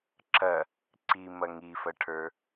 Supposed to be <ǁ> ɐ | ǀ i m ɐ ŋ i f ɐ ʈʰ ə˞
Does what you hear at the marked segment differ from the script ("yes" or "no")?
no